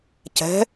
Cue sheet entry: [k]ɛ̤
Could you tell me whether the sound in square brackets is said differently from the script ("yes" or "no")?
yes